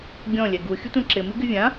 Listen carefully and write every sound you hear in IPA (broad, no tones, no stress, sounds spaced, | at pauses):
ɡʲ ɔ̃ lʲ ɛ ɡ u xʲ ʊ tʷ ɛ̃ ǁ ɪ m i ɡ ɪ vʲ ã